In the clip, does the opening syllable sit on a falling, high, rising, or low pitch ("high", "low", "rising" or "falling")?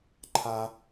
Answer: high